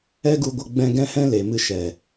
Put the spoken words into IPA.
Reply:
ɛ˦ ɡ u˧ ɡʷ ə˧ ɡ͡b ɛ̃˧ ɡ ɛ̃˦ h ɛ̃˦ l e˨ m ɨ˧ ʃ ɛ˨

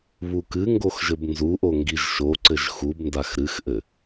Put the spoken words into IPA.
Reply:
β u k ɨ ŋ ɡ o x ʒ ɘ b n z u ʔ o ŋ ɡ i ʒ ʃ o ǀ ɘ ʒ x u b n d a x ɾ ɨ x ʔ ɘ

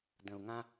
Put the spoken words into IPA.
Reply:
d ə̃˨ u̯ ŋ ã˦

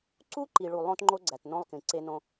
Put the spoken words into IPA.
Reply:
ǀ u˦ ǃ i˨ ɭ u˨ lˠ õ˦ t ŋ͡ǃ o˦ ɡ͡ǀ æ˨ t n õ˦ lˠ k ĩ˨ ǀ e˦ n õ˦

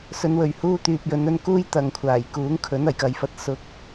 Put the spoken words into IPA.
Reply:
s ɵ˨˧ n w ɵ˨˩ ɥ h uː˧ t̪ yː˨ p̚ j ɵ˨˧ n ɵ˧ n k uː˥ j t̪ ɐ˨ ŋ kʷʰ aː˨˩ j k uː˨˥ ŋ kʰ ɵ˨˥ n ɐ˨˩ j k ɐ˨˧ j f ɐ˧ t̚ s ʊ˧ k̚

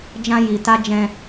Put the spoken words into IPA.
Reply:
d͡ʒ ã˧ j i˨ t a˧ d͡ʒ ɛ̃˧

